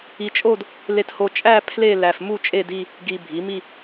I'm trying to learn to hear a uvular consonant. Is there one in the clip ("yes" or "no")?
no